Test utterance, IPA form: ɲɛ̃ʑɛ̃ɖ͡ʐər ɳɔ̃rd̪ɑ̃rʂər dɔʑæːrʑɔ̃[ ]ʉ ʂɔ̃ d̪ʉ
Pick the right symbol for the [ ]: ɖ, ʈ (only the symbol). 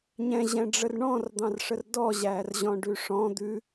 ɖ